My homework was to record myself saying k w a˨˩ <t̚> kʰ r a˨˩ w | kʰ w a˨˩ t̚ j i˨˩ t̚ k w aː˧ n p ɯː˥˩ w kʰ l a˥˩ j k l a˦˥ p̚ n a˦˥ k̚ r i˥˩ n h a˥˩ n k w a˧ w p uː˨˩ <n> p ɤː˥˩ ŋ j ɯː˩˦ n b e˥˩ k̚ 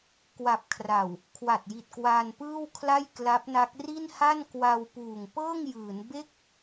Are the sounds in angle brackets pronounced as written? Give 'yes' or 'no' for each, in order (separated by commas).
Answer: no, no